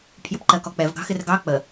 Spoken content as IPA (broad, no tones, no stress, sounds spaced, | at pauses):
pʰ j ə p ǃ ɜ k ɔ k͡p ɛ v ɡ ɑ̤ x ɪ r ɡ ɑ k͡p ə